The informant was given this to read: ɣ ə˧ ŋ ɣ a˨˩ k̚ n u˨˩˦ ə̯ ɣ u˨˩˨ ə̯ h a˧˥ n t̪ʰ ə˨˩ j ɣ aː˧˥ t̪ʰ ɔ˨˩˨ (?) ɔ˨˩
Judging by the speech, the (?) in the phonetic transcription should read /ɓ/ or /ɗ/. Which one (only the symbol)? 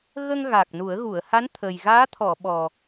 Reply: ɓ